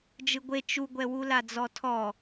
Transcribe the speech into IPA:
d͡ʒɯɡʷe t͡ʃuɡʷɛwu lad͡zɔtʰɔ

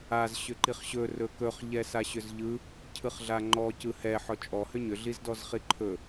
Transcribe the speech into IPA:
az ɕʏǃiχɕɵ rɵkɵχ ʎɛsaɕʏzʎɯ | cʰɯχɮaŋ͡ǃɔ cɯhɛ ħɔt͡ʃʼɔ hʏɲʏ ɮizdɔzχiǃʰɵ

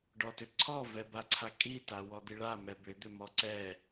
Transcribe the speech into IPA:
ɖɔtʏǀʰɔ vɛbaǀʰakʼi tawɔd̪iɭa mɛbʏ d̪ʏmɔǀɛ

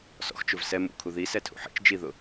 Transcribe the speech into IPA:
sɔ̰xt͡ʃʊv sɛ mṵkʰu ðisɛtʰṵ ħḭt͡ʃ d͡ʒiðʊ

